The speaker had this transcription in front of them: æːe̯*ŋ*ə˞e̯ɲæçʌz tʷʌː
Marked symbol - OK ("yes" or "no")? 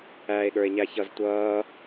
no